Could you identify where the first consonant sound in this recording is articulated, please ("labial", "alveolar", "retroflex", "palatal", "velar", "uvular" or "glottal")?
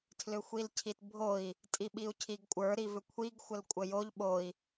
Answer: alveolar